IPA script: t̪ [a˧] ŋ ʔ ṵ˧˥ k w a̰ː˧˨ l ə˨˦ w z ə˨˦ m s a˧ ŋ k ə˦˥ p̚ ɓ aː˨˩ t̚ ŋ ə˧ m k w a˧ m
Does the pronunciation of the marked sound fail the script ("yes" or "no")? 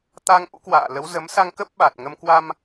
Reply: no